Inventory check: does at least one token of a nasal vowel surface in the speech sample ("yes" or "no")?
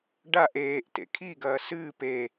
no